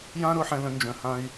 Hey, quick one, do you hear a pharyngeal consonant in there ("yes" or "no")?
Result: yes